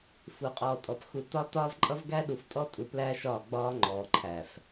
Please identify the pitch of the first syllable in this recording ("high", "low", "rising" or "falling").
low